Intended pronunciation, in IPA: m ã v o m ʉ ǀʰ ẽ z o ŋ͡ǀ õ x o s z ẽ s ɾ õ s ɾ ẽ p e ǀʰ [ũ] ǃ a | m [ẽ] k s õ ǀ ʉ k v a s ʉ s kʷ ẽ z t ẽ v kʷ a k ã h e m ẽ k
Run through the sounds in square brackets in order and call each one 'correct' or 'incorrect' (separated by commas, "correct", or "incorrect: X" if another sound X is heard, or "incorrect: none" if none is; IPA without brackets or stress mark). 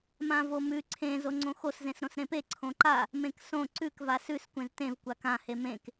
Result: incorrect: õ, correct